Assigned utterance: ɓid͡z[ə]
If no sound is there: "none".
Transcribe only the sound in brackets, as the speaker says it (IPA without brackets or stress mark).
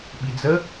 ə